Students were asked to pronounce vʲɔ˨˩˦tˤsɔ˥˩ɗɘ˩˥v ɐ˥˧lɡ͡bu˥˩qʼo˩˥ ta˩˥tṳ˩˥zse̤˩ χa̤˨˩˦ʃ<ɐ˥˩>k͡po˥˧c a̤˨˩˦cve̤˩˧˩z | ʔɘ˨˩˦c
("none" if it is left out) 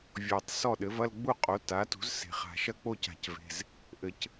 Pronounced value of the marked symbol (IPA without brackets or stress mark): ɐ˥˩